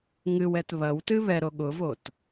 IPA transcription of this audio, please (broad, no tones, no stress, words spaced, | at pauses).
ŋɨwɛt βɐwtɨ βɛɾo ɠʊvot